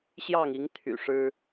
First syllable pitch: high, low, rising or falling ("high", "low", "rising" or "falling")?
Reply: falling